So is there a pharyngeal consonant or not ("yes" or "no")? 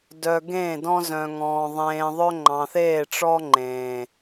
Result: no